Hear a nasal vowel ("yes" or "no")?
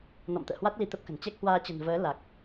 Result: no